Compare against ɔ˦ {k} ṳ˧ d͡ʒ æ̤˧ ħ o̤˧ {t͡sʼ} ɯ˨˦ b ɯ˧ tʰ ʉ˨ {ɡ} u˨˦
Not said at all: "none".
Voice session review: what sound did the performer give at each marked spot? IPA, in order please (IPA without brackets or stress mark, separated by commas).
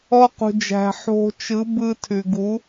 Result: q, t͡ʃ, ɡ